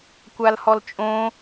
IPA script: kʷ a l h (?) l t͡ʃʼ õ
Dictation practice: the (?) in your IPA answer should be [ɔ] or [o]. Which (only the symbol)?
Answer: ɔ